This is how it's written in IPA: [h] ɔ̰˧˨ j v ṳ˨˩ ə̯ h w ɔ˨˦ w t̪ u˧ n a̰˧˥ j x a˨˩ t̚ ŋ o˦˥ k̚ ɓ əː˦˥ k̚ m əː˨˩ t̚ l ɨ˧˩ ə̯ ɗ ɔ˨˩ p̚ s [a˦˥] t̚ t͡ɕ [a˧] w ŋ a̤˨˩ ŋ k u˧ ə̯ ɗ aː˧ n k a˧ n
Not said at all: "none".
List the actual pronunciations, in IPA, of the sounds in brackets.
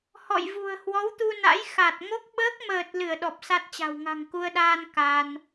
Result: h, a˦˥, a̤˨˩

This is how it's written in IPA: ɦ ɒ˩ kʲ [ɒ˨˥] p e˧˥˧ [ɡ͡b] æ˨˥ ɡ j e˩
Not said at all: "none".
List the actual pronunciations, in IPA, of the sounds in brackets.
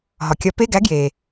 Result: ɒ˨˥, ɡ

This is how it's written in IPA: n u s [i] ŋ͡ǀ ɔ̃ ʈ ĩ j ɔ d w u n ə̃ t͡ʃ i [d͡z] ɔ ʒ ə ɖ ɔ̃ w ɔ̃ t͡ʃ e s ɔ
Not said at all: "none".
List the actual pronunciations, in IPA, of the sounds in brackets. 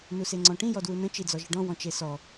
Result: e, d͡z

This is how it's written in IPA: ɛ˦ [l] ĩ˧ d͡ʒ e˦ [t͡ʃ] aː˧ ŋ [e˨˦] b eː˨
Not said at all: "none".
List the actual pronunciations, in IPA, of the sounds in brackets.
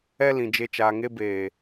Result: l, t͡ʃ, e˧

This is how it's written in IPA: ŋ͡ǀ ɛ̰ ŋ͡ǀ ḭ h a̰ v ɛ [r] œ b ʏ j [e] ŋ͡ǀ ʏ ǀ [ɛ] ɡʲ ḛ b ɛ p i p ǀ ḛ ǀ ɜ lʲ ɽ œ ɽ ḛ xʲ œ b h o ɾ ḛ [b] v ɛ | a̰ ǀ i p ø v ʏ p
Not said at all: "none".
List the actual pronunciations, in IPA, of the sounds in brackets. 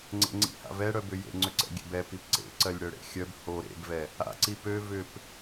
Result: ɽ, ḛ, ɛ̰, b

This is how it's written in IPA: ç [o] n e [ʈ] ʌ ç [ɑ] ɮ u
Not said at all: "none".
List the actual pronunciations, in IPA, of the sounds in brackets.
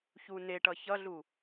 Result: u, ʈ, ʌ

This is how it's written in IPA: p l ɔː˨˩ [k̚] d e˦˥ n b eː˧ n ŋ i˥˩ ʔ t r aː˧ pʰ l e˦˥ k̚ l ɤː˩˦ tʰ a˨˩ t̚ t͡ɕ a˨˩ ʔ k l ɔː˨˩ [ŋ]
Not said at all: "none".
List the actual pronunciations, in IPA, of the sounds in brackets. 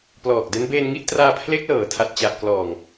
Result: k̚, ŋ

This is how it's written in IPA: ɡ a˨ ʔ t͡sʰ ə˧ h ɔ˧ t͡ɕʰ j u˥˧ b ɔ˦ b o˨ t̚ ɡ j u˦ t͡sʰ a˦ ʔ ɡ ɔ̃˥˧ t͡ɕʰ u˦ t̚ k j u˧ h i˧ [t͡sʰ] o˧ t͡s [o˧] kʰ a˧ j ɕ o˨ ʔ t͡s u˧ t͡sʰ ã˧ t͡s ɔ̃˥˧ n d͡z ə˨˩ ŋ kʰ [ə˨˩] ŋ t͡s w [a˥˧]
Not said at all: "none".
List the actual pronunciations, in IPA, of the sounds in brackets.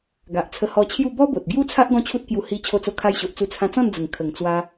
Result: t͡ɕʰ, o˧, ə˨˩, a˧

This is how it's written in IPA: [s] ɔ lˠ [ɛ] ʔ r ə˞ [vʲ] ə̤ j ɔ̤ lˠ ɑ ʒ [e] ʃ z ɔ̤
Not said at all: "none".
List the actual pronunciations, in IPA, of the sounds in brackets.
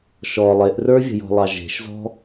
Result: ʃ, e, vʲ, e̤

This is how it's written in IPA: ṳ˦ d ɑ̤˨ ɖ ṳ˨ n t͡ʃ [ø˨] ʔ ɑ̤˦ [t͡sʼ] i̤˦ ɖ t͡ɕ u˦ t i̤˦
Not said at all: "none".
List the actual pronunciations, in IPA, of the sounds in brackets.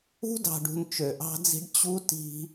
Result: ø˨, d͡z

